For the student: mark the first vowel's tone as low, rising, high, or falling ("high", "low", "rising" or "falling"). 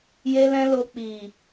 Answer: high